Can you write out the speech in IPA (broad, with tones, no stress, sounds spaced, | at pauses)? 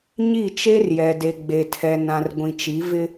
ɲ i˦˨ t͡ʃ e˦ r j ɛ˨ d e˨ ɡ͡b e˨ tʰ ɛ˨ n ã˨ r ɡʷ ĩ˨ t͡ʃ i˨˦ v ɪ˦